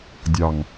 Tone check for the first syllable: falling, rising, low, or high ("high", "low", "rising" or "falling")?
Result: low